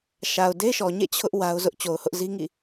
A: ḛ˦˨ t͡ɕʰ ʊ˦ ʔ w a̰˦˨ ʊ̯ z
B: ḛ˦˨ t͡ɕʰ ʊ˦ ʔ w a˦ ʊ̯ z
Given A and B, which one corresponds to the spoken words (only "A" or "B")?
B